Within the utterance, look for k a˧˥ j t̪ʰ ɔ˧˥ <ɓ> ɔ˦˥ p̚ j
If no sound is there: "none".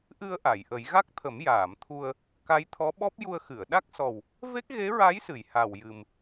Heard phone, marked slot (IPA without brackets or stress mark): ɓ